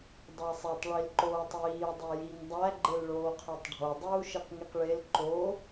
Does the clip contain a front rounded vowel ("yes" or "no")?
no